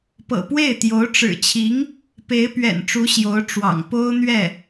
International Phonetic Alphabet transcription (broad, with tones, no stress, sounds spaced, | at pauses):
p ɤ̰˨˩ p w e˥˩ ɪ̯ t̪ j o˧˥ ʊ̯ ʈ͡ʂ ɻ̩˨˩ t͡ɕʰ i˧˥ ŋ | p e˧˥ ɪ̯ p ɥ ɛ̰˨˩ n ʈ͡ʂ u˧˥ ɕ j o˧˥ ʊ̯ ʈ͡ʂ w ɑ̰˨˩ ŋ p o˥ ʊ̯ n̪ ɥ ɛ˥˩